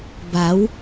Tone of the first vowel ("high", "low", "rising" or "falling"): rising